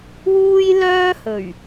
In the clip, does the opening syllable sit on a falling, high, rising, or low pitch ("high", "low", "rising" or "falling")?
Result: high